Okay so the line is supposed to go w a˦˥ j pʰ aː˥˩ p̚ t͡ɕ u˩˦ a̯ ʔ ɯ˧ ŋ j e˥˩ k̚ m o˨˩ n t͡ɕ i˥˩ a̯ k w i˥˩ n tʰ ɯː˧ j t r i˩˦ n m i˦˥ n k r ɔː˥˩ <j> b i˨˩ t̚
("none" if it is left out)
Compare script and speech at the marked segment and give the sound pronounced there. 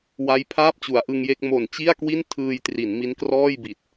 j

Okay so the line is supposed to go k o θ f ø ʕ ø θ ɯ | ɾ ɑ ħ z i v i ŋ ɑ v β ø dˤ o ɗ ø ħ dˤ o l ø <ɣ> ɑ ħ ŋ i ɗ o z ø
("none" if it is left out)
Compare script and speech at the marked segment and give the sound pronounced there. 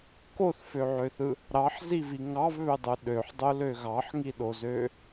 ɣ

